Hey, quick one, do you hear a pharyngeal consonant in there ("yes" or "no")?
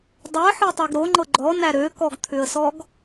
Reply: yes